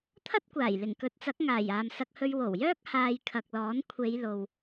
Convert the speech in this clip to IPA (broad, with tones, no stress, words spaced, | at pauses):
t̪ʰɐ˥t̚kʷaː˨˩j lɪ˨˩ŋkɵ˨˥t̚t͡sɐ˨˥k̚ ŋaː˨˩j aː˨msɐ˧k̚hɵ˧ɥ wo˨˩wjœː˥k̚ haː˧jkʰɐ˨k̚lɔː˨˥n kʷʰe˨˧jlo˨w